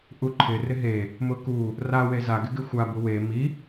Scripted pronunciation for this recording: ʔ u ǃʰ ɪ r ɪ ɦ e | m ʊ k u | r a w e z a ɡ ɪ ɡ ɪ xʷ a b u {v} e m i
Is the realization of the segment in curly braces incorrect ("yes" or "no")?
yes